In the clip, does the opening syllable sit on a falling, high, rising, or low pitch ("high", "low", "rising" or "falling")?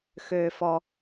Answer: low